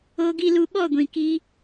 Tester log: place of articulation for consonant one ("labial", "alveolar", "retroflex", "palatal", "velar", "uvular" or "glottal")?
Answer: velar